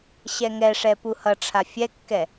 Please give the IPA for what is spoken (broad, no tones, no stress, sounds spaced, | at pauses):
ɕ ɛ ŋ ɛ ʂ ɛ p u h ʌ ʈ͡ʂʰ a fʲ ɛ kː ɛ